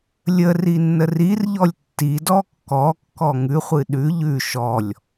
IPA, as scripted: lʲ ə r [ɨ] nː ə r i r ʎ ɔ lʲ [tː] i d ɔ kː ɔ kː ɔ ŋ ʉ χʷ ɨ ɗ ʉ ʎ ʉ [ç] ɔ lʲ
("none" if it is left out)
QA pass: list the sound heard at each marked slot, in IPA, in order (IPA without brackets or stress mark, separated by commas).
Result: i, tː, ʃ